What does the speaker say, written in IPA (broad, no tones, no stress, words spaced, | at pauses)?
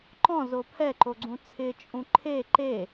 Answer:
ǃɔ̃ zopʰɛ ǃoɡ͡ǀũt͡sʰɪ t͡ʃʼũǃʰe ǃe